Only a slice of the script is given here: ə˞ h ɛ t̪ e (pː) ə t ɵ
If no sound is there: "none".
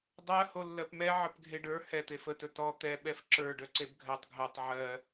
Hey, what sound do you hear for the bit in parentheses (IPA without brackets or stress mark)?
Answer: f